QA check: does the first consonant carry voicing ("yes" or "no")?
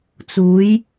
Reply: no